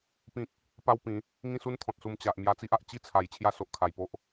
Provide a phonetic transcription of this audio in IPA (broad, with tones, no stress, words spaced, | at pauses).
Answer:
pĩ˦k̚ | pa˦wpĩ˨˦ | ŋĩ˥˧su˦n t̪ʰɔ̃˨t̚su˧m t͡ɕa˨ʔ mja˧t͡si˦ʔ a˨ʔ t͡ɕi˥˧t͡sʰa˨˩j t͡ɕʰja˥˧so˨ʔkʰa˨˩jpo˦ʔ